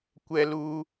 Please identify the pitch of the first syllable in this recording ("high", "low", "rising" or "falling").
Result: high